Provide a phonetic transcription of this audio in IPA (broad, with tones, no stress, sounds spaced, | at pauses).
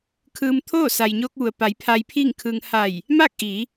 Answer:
kʰ ɯː˧ m t̪ʰ oː˥˨ s a˩ j ɲ oː˧ k̚ ʋ u˩ ə̯ p a˩˧ j pʰ a˧ j pʰ iː˥˨ ŋ kʰ ɯː˧ ŋ h a˧˩ j | m aː˥˨ k̚ ʔ iː˩˧